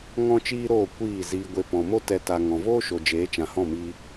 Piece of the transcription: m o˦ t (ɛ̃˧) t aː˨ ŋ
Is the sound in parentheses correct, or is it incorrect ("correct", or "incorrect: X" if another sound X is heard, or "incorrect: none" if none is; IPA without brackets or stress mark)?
incorrect: ɛ˧